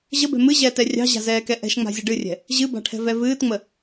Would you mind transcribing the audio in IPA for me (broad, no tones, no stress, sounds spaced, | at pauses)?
ʑ ə b ɛ̤ m ɨ ʑ ɛː t ɛ rʲ ɑ̤ ʑ a̤ z ɛː k ɛ ʔ ɛ̤ ʃ ŋ͡m a̤ zʲ ə ɖ ɨ rʲ ɛ̤ | ʑ ɨ b a̤ ʈʰ ɛ̤ v ɛ v ɨː t ŋ͡m ə